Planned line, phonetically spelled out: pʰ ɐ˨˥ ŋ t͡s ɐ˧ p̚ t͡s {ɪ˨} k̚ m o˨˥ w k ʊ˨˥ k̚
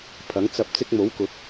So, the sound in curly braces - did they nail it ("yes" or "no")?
no